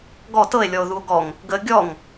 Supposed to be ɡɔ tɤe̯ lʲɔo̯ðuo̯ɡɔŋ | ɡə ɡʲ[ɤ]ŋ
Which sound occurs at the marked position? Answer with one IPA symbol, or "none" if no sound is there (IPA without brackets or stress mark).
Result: ɔ